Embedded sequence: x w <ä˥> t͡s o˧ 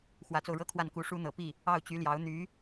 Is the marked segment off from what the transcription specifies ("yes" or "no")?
yes